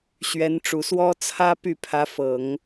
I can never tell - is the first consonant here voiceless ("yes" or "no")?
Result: yes